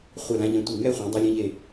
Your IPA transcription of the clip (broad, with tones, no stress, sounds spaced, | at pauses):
χʷ a˧˩ l ã˧ ʎ ɛ̃˧ tʷ i˧˩ ŋ ɛ˥˧ χʷ ẽ˩˧ dˤ a˧ lʲ ẽ˧ ʎ e˧˩